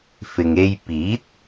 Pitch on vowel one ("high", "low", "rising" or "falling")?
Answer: low